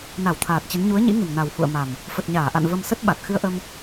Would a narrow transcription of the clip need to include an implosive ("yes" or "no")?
yes